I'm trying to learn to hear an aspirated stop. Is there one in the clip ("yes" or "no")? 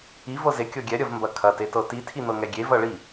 yes